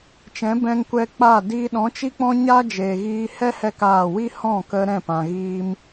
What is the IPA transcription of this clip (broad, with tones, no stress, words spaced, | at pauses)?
t͡ʃɛ̃˨˦bɛ̃˧ŋkʷɛ˧k͡paː˦˨ diː˧ ɗɔ̃˨˦t͡ʃi˦k͡pɔ̃˦ɲaː˦ d͡ʒeː˨ɣiː˧ hɛ˦hɛ˧ kaː˦˨ wi˦ hɔ̃˦˨kə˧ ɾɛ̃˦˨pã˨ɣiː˧m